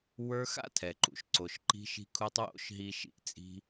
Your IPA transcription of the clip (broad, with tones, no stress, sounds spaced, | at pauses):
w ə˞˧ x a̰˥ tʰ ɛ˩ ǃ ṵ˩ ʃ ǀ o˩ ʃ ǃ i̤˧ ʃ i̤˧ kʰ u˧ tˤ w o̰˥ ʃ ɦ i˧ ʃ ḭ˧ ʔ t͡sʼ i̤˧